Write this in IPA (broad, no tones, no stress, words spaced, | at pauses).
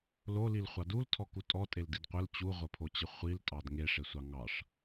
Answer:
lolilχʷɑ dultʰɔku tʼɔtʼeldid qʷəl t͡ɕuʁʷəpʰot͡ɕə χʷiltʼɑd ŋeʂesʷɑ ŋɑʂ